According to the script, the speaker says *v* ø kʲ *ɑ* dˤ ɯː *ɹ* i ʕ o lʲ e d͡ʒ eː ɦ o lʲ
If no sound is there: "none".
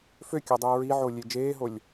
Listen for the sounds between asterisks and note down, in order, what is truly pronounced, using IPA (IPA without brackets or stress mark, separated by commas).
f, ɑ, ɹ